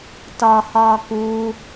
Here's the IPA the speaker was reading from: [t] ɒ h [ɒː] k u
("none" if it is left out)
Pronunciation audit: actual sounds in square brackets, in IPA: t, ɒː

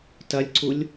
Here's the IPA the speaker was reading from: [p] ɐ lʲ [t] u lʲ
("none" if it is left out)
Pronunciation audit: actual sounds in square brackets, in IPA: t, ǀ

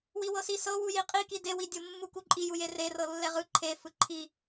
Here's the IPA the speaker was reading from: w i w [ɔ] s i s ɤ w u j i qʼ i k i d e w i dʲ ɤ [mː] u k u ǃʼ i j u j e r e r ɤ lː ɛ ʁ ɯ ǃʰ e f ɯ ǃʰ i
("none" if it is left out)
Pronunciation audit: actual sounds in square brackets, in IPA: ɤ, mː

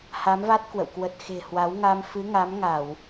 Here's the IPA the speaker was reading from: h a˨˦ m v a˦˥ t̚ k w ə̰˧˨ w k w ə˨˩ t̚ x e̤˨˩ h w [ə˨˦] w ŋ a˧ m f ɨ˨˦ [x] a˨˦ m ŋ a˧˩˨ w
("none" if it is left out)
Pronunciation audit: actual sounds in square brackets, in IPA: a˨˦, ŋ

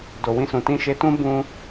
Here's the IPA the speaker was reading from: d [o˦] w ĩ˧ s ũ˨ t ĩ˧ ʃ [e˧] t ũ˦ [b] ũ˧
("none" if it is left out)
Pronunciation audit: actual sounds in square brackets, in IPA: o˨, e˧, b

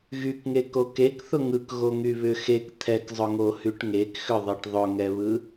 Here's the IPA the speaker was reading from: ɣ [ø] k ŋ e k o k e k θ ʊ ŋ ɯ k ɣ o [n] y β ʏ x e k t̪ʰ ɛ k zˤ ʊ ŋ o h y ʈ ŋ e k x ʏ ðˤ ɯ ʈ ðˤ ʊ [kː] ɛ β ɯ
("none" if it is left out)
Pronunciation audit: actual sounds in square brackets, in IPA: y, ŋ, ŋ

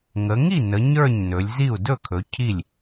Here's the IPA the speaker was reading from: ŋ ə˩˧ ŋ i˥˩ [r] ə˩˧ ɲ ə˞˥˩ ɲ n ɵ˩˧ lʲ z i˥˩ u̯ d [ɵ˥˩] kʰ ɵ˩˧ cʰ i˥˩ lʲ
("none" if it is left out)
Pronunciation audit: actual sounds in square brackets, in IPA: n, ɵ˥˩

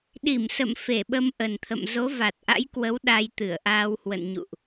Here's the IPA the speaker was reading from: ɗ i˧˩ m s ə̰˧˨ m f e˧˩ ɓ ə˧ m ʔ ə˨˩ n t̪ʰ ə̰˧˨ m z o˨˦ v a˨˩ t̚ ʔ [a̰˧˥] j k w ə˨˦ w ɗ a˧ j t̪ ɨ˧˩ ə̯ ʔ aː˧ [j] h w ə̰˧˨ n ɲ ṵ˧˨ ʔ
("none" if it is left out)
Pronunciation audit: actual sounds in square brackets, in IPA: a̰˧˥, w

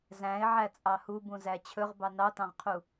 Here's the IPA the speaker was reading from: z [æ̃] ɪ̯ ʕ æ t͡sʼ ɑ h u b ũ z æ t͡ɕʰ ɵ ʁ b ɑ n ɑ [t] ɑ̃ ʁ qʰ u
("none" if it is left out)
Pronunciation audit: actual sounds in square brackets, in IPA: æ̃, t

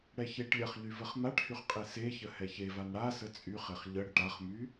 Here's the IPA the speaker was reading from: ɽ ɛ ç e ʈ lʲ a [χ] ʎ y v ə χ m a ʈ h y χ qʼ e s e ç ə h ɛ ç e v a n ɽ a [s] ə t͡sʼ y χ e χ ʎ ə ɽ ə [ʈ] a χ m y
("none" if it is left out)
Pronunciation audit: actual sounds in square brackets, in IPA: χ, s, ʈ

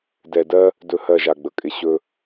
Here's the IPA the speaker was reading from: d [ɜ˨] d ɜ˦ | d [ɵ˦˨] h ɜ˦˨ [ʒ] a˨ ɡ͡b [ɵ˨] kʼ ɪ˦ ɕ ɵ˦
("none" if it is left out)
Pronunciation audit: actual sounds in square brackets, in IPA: ɛ˨, ɵ˦˨, ʒ, ə˨

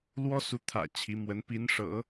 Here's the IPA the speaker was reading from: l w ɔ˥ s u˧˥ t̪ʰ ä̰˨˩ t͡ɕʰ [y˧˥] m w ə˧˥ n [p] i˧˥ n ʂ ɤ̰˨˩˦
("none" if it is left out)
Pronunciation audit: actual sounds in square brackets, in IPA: i˧˥, p

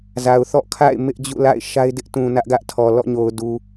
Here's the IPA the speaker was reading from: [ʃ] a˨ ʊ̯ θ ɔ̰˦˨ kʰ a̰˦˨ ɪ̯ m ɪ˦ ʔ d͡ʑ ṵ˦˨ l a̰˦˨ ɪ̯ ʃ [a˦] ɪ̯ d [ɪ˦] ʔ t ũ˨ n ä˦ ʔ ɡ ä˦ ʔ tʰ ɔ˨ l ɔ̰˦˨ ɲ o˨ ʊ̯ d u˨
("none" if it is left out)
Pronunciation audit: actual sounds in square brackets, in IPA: z, a˦, ɪ˦

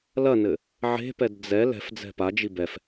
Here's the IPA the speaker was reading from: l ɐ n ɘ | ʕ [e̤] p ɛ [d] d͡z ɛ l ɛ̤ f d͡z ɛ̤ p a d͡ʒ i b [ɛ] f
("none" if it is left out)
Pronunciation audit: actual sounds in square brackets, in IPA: e̤, d, ɛ

